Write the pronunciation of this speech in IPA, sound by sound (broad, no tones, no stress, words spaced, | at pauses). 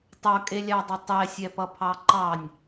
tˤʌkʼelʲɑdˤʌ tˤɛsʲɛpʌ pʰɑǃɑnʲ